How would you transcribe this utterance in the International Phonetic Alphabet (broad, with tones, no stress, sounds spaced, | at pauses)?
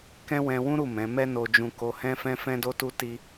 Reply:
k ɛ̃˦ w ɛ̃˧ w ũ˦ ɾ u˦˨ m ɛ̃˨˦ m ɛ˦ n o˧ d͡ʒ ũ˧ k o˧ h ɛ̃˦ f ɛ̃˦ f ɛ̃˦ d o˦ t u˦ t i˦